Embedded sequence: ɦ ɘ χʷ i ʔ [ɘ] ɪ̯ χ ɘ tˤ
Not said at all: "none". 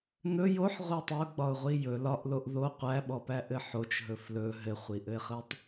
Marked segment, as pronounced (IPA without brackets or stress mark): ɘ